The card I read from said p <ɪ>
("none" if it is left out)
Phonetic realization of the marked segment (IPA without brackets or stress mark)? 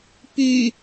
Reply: y